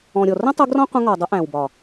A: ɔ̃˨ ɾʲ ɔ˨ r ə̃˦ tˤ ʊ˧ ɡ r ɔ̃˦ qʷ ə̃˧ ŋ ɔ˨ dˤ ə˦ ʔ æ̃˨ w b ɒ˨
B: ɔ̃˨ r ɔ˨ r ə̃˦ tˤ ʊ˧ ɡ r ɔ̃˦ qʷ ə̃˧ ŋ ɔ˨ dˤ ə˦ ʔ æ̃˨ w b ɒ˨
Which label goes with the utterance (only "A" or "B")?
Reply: A